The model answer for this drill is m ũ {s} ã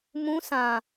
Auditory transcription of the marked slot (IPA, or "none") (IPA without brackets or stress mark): s